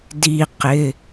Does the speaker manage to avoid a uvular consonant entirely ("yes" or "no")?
no